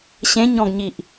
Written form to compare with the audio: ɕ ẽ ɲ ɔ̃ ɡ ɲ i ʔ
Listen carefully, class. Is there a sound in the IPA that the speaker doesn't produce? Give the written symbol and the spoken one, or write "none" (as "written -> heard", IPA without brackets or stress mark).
none